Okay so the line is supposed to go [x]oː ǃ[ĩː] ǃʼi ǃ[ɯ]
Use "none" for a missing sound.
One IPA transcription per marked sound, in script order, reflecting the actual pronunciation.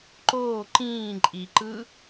ǃ, ĩː, ɯ

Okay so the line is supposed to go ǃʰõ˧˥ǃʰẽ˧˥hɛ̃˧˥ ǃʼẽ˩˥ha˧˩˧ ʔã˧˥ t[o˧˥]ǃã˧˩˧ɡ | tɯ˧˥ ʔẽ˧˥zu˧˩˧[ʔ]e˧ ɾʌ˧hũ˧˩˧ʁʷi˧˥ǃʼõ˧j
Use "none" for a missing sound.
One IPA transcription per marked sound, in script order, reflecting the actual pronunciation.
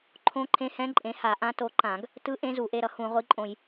o˧, ʔ

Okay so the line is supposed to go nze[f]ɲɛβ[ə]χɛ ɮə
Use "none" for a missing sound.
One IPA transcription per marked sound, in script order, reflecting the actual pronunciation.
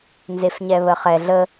f, ə

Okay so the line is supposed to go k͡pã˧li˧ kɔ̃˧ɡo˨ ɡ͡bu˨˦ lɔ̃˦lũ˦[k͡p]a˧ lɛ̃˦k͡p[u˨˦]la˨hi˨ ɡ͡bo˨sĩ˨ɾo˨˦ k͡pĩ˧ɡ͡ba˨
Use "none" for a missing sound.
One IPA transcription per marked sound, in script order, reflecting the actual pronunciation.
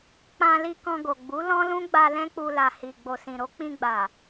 ɡ͡b, u˧

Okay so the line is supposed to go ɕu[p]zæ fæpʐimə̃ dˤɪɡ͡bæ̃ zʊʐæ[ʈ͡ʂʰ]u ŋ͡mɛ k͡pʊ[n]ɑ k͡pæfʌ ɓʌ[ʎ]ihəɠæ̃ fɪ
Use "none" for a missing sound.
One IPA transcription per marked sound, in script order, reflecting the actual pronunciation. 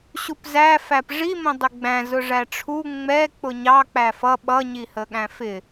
p, ʈ͡ʂʰ, ɲ, ɲ

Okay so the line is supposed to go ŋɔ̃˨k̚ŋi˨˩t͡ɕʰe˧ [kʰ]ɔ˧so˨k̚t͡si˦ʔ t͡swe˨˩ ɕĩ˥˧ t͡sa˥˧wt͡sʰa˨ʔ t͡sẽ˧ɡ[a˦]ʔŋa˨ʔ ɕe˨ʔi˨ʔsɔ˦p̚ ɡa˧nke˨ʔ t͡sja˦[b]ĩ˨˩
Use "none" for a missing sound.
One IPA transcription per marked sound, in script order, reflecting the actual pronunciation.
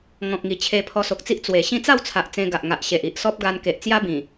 pʰ, a˨, b

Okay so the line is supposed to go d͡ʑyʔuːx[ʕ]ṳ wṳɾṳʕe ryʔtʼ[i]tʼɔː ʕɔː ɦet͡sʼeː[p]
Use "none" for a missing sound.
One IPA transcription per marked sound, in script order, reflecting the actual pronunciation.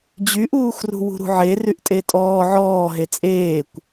r, e, kʷ

